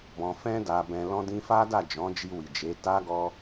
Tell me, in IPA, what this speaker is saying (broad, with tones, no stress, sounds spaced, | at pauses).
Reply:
b ɔ̃˧ f ɛ̃˦ d a˧ b ɛ̃˧ l ɔ̃˦ d ĩ˦ f a˦ d a˦˨ d͡ʒ ɔ̃˨˦ d͡ʒ i˧ w i˨ d͡ʒ e˨˦ t a˦ ɡ ɔ˦